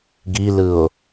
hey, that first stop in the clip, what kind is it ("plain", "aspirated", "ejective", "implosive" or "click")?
plain